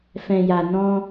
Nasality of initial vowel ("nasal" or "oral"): nasal